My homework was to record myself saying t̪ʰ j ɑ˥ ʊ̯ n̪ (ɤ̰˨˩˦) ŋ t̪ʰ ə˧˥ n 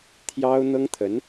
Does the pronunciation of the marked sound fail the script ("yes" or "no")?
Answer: yes